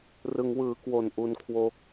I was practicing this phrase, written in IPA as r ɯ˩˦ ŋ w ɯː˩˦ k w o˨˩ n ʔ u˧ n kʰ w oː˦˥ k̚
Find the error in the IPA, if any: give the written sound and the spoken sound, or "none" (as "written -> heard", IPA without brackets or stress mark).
none